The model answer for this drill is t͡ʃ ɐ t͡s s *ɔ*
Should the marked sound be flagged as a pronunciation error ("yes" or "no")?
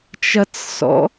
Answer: yes